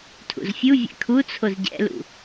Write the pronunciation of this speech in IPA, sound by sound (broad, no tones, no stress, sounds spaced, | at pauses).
tʰ ṵ z fʲ u vʲ ɛ̰ kʰ u t͡sʰ o z ɟ ɛ̰ l ṵ